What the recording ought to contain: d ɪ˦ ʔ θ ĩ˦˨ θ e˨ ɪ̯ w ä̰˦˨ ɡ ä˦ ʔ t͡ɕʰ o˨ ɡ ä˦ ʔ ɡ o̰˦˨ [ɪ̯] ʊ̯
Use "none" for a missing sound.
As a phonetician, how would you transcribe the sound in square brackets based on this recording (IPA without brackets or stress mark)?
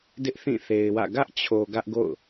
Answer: none